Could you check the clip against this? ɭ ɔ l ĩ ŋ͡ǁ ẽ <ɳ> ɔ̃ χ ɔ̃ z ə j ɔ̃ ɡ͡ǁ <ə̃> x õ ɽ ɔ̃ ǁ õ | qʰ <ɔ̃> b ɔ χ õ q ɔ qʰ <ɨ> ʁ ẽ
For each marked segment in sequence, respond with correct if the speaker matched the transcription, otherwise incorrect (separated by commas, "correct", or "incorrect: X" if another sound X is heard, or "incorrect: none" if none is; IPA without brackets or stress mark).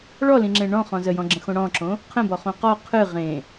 correct, correct, incorrect: ə̃, correct